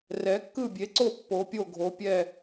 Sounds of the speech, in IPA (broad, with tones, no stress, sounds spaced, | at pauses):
r ɛ˩˧ kː ɯ˦˨ bʲ e˩˧ ǀ o˦˨ pː o˩˧ pʲ o˦˨ ɡʱ o˩˧ pʲ ɛ˦˨